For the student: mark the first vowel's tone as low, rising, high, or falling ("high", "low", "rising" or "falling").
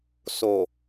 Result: low